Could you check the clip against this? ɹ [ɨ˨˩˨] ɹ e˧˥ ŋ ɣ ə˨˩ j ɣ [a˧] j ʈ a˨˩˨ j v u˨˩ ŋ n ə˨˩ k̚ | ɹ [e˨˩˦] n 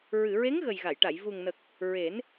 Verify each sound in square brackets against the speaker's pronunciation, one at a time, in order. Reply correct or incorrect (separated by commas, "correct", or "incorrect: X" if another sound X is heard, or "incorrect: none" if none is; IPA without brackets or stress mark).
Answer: correct, incorrect: a˨˩˨, correct